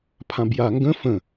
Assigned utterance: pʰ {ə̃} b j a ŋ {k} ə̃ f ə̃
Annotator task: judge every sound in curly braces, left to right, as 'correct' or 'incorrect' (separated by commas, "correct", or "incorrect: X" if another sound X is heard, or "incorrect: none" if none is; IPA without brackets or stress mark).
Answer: incorrect: ã, incorrect: ɡ